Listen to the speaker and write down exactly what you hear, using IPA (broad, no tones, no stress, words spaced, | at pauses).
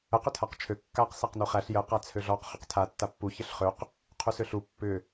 əq ʏtʰaqt͡ʃʰø kːaq sæqnuχæɬ jə qat͡sʰøɮɔq χʏqtʰa tːapːu çəɬχøq | qʰusøɬu pːʏ